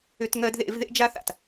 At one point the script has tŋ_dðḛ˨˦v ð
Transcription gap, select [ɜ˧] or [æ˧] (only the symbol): ɜ˧